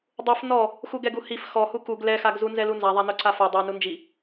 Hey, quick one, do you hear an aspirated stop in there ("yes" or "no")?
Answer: no